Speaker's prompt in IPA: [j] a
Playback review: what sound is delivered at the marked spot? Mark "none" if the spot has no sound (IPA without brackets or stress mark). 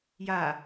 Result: j